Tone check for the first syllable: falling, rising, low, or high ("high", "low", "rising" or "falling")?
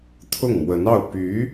falling